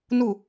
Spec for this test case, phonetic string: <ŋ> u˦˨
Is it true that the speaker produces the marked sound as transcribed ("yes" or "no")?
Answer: no